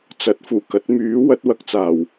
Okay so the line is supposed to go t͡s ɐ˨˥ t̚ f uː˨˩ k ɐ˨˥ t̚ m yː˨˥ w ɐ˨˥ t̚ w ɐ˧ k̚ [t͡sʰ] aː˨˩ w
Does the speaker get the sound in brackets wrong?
yes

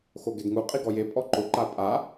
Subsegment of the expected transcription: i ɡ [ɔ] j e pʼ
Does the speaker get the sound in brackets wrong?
no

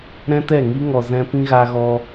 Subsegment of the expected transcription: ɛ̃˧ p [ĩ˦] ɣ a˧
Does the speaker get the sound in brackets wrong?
no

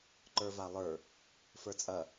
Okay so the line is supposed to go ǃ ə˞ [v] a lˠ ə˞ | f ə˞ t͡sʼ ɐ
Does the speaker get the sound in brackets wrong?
no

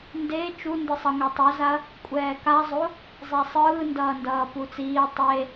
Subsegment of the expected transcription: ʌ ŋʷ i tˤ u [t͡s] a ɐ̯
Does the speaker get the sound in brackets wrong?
yes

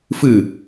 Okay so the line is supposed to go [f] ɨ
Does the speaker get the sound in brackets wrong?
no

